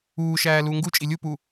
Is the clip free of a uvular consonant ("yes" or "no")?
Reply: yes